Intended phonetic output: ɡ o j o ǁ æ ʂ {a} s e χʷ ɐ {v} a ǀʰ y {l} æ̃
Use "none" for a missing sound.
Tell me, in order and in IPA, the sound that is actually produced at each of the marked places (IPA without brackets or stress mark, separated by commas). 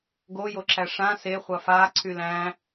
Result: ã, f, l